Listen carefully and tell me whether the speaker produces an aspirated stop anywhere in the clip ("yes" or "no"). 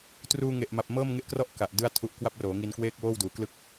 yes